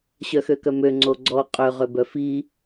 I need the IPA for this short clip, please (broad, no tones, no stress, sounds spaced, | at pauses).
ɕ œ x ø k œ m ø ŋ͡ǀ o ɡ͡ǀ ɔ qʼ ø ʁ ø b œ f i